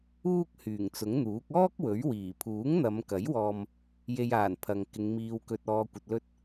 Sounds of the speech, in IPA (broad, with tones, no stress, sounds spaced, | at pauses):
uː˥ k̚ h yː˨˩ ŋ t͡s ʊ˨˥ ŋ n̪ uː˨˥ k̚ ɔː˥ k̚ w ɵ˨˥ ɥ w iː˨˩ pʰ uː˨˥ ŋ n̪ ɐ˨˧ m k ɐ˨˥ j w ɔː˧ m | j e˧ j aː˨˩ n pʰ ɐ˨ ŋ k ɪ˨˧ ŋ m iː˧ w k ɵ˧ t̚ ɔː˧ kʷ ɐ˧ t̚ l ɵ˥ t̚